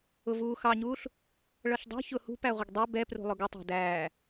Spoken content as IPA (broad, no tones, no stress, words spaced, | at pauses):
ʊvuːxɑɲuːɬ | ɭʌɬdˤṳ çʊ hṳ pæʁʷɪɡdˤɛ bɛ prṳlˠʊɡʊtˤɑ̤ dæː